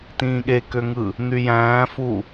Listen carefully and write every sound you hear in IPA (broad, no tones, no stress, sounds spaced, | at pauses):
t ĩː ɠ e k ø ŋ ɯ | n̪ y j æ̃ː f u